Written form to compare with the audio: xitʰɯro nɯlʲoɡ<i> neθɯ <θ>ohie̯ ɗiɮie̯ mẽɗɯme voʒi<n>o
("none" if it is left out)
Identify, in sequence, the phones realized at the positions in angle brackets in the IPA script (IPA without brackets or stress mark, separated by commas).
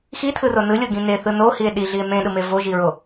ĩ, n, ɹ